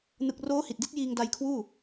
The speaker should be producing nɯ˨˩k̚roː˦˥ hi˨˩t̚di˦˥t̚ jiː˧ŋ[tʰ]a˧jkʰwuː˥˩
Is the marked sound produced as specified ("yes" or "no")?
no